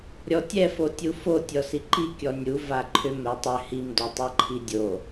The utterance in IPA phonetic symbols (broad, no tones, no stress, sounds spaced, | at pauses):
ɾʲ ɔ tʲ ɛ f o tʲ u f o tʲ ɔ s i ǃ i kʲ ɔ nʲ u v a ǃʰ ʏ m ɛ tˤ ʏ h i m d o tˤ ɛ ǃʰ i dʲ o